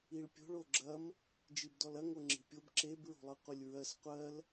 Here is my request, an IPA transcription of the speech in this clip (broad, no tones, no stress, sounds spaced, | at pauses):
i ɭ pʲ o̤ ɭ o ɡ͡ǁ ɐ m | d͡ʒ i b d ɔ l ɐ ŋ o ŋ͡ǁ i̤ pʲ o b ǁ e b ɹ o̤ lˠ ɯ qʷ e lʲ ɹ ɜ s qʷ ɜ l